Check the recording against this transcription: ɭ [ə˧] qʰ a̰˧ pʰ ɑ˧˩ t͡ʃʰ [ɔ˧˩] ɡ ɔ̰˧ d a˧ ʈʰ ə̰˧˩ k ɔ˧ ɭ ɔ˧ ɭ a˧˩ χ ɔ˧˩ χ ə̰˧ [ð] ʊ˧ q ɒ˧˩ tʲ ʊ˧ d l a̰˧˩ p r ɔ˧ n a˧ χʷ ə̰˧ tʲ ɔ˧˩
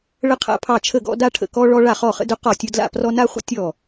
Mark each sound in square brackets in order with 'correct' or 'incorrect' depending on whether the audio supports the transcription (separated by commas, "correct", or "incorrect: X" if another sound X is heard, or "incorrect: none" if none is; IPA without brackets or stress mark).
correct, incorrect: ə˧˩, incorrect: d